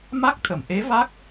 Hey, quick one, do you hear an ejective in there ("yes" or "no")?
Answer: no